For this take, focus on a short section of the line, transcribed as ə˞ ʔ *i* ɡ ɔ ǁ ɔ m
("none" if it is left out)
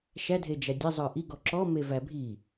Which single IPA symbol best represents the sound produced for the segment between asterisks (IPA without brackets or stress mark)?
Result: i